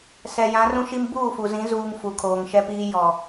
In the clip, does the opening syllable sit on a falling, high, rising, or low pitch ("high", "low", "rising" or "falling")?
low